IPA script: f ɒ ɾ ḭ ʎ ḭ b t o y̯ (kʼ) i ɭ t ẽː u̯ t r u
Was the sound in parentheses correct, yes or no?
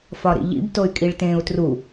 yes